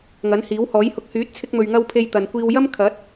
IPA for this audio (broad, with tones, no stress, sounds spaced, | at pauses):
ŋ ɐ˨˥ n h iː˨˥ w h ɔː˨˥ j h ʊ˧ k̚ h yː˨˥ t̚ t͡sʰ ɪ˧ k̚ m ɵ˨ ɥ ŋ ɐ˧ w pʰ e˧ j t̪ ɐ˨ n kʷ iː˧ w j ɐ˥ m kʰ ɐ˨˥ t̚